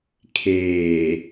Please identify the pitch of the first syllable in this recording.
low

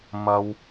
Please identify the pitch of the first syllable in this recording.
low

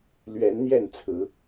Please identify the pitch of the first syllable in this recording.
rising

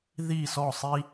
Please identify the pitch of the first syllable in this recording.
falling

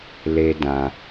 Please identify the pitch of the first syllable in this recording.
high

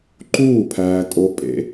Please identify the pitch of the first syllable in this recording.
falling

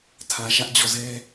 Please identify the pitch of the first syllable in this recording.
low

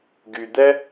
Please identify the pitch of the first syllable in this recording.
low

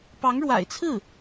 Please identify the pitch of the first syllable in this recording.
rising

